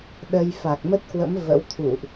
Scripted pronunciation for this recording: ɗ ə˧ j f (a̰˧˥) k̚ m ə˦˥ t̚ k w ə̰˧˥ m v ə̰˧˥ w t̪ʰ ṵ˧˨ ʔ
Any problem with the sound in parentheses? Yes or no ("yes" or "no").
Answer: yes